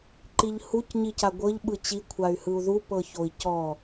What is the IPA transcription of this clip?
ǃ i ʎ h u c ɲ i c a ɡʷ ɤ ʎ ɓ ɯ t͡ɕ i kʷʰ a y̯ h ɯ u̯ ð u p ɤ ç o i̯ c ɔ

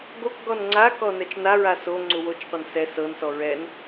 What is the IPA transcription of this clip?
ɡ o k ɡ ɔ n ŋ͡ǀ a k ɔ n ɛ t͡ʃ n a ɹ a s o ŋ͡ǀ u w o t͡ʃ qʷ ɛ n s ɛ s ɤ n s ɔ ɹ ɛ n

